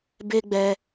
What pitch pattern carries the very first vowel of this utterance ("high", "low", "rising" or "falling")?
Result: high